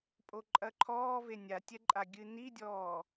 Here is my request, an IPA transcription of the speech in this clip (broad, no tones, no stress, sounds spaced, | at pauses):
pʼ o ǃʼ ɐ ǃʰ ɔː v e nʲ a tʲ ɛ ǃʼ a ɡʲ ɨ n i dʲ ɔː